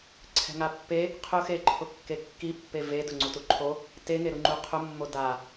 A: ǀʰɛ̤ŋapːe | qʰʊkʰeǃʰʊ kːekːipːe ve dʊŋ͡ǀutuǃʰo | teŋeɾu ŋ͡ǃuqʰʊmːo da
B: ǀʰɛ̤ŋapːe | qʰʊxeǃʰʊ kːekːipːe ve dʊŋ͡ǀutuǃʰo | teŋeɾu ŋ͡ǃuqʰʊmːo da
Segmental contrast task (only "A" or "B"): B